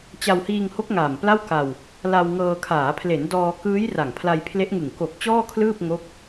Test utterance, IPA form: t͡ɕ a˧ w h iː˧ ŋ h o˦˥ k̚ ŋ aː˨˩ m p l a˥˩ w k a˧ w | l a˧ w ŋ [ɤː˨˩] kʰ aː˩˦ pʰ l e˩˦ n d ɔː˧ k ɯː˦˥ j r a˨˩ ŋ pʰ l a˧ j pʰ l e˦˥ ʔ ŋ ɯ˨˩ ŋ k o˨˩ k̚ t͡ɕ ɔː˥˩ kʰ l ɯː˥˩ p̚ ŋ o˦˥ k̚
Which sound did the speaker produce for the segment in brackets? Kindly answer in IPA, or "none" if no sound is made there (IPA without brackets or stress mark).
ɤː˧